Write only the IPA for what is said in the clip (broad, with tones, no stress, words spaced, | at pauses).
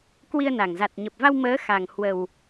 kwi˧ə̯na˨˩ŋ za˨˩t̚ɲə˨˩p̚va˧w məː˨˦ xa˨˩ŋhwə˨˩w